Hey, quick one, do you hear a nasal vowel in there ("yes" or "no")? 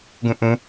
yes